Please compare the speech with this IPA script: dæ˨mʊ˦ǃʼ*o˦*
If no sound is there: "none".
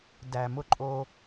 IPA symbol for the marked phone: o˦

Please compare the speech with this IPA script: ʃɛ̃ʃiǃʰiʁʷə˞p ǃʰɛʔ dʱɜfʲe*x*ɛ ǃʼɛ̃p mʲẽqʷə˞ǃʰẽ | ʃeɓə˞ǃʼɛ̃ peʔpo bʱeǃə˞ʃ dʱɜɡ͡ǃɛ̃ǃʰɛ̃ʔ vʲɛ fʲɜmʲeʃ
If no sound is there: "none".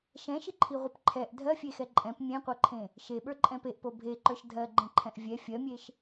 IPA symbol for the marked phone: x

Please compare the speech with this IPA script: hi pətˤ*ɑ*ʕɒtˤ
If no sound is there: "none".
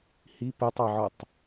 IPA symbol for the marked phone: ɑ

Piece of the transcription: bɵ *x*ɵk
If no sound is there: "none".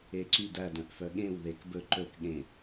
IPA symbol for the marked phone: ǃ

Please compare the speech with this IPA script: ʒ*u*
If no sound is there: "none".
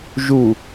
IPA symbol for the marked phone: u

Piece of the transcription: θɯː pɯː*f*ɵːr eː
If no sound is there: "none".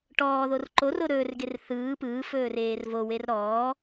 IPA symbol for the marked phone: f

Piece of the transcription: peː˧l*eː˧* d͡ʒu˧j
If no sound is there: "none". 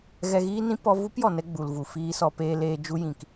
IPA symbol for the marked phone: eː˧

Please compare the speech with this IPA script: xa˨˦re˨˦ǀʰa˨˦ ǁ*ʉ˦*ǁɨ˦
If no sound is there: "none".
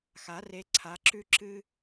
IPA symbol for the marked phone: ʉ˦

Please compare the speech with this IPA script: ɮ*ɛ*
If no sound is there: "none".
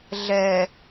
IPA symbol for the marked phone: ɛ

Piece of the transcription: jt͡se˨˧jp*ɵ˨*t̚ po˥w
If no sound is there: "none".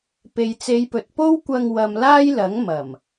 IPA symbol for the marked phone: ɵ˨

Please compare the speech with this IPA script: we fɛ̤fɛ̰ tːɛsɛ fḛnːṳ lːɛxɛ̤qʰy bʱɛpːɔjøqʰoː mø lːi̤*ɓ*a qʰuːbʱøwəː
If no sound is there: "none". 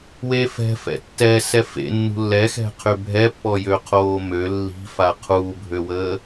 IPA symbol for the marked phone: f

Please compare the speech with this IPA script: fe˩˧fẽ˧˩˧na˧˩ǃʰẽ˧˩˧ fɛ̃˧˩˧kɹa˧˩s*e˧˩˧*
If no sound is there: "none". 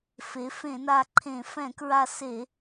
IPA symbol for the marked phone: e˧˩˧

